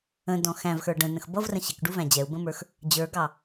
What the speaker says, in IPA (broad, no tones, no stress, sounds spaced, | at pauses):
ə̃ d ɔ̃ x æ̃ v x ə˞ ɖ ə̃ n ə̃ x b ʌ v r ə̃ ɕ ɪ k ɖ u v æ̃ d͡ʑ ɛ u̯ b ə̃ m ə˞ x | d͡ʑ ə˞ ɡ ɑ